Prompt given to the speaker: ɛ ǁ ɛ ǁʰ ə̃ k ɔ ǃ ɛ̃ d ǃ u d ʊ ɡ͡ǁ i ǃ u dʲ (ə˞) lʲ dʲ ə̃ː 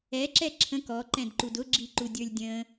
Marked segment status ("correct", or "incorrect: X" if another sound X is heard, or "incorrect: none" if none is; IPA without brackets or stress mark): correct